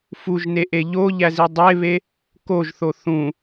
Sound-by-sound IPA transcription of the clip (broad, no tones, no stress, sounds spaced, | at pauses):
f u ʒ n e ʔ e ʎ o ʎ æ z i dˤ e β e | k o ʒ θ o θ ũ